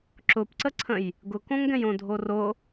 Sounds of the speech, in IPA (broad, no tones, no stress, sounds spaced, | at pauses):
ǁ ʊ p ǀ ə ǀʰ ə̃ j | ɡ ʊ k õ ŋ ɡ ɛ̃ j õ dʱ o r o